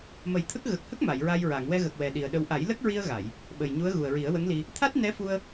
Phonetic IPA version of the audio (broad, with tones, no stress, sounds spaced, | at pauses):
m ə˨˩˦ j t̪ʰ ə˦˥ k̚ ɣ ə˨˩ k̚ h ə˦˥ k̚ m a˨˩˨ j ɹ a˧ j ɹ a˨˩˨ ŋ w ɛ˧ ɣ ə˨˩ k̚ w ɛ˨˩ ɗ i˨˩ ə̯ ɗ ə˧ w ʔ a˨˩˦ j l ə˦˥ k̚ ɹ i˧ ə̯ ɣ a˨˩˨ j | ɓ ə˨˩ j ɲ u˧˥ ə̯ ɣ u˨˩ ə̯ ɹ i˨˩˦ ə̯ w ə˧˥ ŋ l i˧ | t̪ʰ a˦˥ t̚ n ɛ˧˥ f u˧ ə̯